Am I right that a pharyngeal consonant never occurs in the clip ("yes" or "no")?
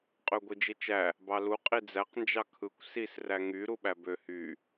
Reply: yes